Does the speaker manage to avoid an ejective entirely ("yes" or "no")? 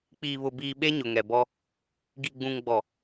yes